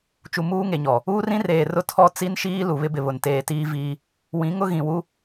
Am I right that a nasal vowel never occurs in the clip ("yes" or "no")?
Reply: no